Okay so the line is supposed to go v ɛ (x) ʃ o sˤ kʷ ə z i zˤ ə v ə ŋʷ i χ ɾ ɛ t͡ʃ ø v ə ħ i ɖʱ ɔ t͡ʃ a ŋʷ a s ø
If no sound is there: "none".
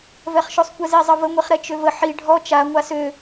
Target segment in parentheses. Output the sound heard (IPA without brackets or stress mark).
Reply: χ